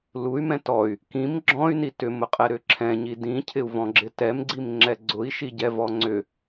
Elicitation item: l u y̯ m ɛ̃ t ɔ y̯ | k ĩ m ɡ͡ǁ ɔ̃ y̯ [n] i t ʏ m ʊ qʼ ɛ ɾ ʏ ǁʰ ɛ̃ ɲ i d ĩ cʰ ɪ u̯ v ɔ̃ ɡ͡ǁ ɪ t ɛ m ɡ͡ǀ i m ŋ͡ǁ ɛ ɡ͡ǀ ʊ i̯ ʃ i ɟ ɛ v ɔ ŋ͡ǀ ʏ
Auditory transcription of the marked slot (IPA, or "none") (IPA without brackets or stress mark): n